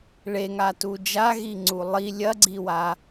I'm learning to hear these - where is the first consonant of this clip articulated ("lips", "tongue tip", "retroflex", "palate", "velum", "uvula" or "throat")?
retroflex